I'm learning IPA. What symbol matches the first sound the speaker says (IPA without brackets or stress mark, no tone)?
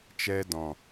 t͡ʃ